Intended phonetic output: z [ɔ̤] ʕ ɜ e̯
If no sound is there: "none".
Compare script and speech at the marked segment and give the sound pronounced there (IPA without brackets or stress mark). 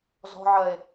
ɔ̤